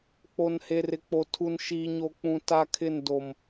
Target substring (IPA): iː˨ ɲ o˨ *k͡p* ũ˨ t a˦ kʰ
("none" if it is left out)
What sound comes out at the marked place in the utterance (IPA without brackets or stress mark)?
k͡p